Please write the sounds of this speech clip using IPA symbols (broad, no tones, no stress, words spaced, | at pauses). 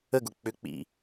əɡʊ k͡pʏk͡pḭ